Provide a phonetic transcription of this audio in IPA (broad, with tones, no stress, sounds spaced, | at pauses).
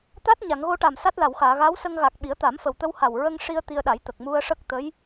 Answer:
t̪ a˦˥ t̚ ɲ a˨˩˨ ŋ ɣ o˧ ʈ a˨˩ m s a˦˥ t̚ l a˨˩˨ w x aː˨˩˨ ɣ a˧˥ w s ə˧ ŋ ɣ a˨˩ k̚ ɓ i˨˩˦ ə̯ t̪ a˨˩˦ m f ə˨˩ w t̪ ə˧ w h a˨˩ w ɹ ə˧ ŋ ʂ i˧ ə̯ t̪ i˧ ə̯ ɗ a˨˩˦ j t̪ ə˨˩ k̚ m u˧ ə̯ ʂ ə˦˥ k̚ t̪ ə˧˥ j